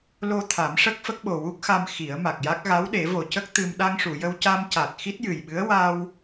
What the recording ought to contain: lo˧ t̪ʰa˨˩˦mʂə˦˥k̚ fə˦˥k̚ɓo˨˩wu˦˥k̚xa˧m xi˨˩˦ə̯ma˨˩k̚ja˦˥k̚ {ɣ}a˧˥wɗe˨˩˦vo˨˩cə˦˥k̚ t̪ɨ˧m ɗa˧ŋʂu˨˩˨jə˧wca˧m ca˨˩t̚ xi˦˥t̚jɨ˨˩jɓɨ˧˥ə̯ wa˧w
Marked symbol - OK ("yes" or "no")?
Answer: yes